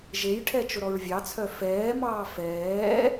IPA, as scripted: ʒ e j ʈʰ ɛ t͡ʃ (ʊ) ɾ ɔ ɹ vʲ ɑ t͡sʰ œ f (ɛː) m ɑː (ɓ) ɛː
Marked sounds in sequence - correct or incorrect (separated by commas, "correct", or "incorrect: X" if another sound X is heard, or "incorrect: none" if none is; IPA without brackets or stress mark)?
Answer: correct, correct, incorrect: f